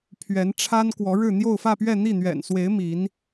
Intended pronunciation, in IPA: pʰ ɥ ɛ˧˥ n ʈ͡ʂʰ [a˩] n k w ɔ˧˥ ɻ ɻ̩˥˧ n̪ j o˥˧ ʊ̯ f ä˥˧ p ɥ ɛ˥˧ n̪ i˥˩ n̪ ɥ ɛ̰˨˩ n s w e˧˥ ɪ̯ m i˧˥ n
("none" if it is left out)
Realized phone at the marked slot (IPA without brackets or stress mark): a˥